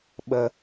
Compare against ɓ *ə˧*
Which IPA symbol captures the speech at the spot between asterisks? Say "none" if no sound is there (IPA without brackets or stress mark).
ə˧